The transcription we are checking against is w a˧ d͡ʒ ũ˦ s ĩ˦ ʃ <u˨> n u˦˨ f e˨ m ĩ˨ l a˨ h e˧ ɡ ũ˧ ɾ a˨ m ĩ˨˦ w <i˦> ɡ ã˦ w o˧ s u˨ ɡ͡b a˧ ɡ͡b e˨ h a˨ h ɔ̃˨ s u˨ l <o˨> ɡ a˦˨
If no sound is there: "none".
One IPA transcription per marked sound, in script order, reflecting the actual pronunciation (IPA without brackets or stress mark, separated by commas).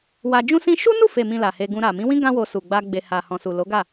u˦, ĩ˦, o˨˦